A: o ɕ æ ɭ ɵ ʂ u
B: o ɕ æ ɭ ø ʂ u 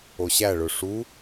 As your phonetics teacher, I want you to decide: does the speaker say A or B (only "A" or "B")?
A